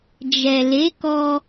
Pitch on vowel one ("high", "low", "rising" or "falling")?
low